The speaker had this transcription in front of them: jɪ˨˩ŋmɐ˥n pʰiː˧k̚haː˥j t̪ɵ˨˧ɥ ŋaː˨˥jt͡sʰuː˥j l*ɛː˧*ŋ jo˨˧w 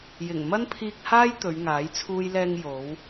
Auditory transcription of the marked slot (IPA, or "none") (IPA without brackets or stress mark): ɛː˧